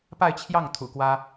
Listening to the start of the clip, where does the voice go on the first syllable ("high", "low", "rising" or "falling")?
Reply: falling